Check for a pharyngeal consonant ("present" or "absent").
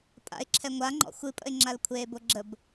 absent